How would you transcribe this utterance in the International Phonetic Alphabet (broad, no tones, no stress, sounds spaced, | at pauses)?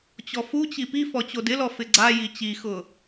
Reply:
t͡ɕ ɔ f u t͡ɕ i p i f ɔ t͡ɕ o d ɪ l ɔ f ɪ ɡ͡ǀ a j i t͡ɕ i x ʊ